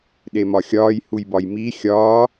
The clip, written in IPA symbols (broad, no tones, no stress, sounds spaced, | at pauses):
ɗ e m ɒ xʲ ɒː j h u j b ɒ j m i xʲ ɒː